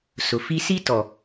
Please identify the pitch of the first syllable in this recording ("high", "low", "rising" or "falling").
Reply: low